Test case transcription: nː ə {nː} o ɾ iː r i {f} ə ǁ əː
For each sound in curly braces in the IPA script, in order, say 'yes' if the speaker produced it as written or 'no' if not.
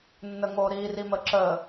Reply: no, no

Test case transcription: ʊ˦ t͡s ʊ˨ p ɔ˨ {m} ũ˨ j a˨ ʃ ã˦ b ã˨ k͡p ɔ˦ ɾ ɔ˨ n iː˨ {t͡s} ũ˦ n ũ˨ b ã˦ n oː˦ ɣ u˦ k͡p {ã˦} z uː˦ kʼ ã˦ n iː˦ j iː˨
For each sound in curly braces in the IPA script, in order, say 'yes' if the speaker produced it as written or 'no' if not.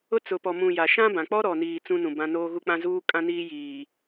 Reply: yes, yes, yes

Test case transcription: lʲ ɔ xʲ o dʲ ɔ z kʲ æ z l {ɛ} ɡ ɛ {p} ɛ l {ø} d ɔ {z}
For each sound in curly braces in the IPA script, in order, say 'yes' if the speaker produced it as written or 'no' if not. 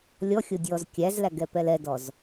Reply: no, yes, no, yes

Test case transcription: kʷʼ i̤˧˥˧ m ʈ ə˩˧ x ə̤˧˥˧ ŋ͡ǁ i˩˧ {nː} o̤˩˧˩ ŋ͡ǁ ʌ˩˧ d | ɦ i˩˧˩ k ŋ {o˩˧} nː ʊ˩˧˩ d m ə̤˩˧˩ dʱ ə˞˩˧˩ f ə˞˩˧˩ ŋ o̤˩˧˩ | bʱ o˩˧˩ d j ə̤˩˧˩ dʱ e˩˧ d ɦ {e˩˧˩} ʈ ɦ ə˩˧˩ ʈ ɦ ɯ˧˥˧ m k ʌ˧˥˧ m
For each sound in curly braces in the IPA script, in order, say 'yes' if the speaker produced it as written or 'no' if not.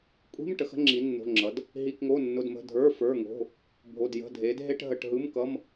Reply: yes, no, no

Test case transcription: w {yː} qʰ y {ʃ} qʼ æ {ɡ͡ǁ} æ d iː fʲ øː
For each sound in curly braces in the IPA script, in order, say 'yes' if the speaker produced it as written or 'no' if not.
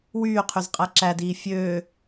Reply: yes, no, no

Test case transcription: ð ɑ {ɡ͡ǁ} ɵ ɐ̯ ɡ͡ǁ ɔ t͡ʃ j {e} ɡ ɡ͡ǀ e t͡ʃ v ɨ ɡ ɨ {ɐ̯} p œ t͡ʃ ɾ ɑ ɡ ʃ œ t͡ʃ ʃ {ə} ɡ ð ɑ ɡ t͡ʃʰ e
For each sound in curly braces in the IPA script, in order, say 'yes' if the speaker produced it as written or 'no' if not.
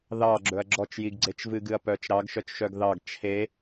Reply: yes, no, yes, no

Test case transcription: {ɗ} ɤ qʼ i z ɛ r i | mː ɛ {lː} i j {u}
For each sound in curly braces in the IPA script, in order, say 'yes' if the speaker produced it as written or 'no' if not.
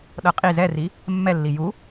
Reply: yes, yes, yes

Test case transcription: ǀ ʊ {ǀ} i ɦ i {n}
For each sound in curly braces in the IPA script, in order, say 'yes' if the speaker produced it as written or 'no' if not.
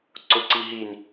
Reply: yes, yes

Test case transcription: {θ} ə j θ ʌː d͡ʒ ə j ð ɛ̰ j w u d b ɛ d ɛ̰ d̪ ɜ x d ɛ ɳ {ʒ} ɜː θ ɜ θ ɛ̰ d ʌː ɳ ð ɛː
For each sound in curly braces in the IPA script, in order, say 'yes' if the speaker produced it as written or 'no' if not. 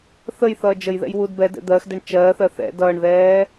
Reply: yes, no

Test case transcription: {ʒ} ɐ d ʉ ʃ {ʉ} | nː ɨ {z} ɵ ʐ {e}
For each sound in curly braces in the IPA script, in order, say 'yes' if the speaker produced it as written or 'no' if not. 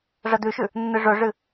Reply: no, yes, no, no

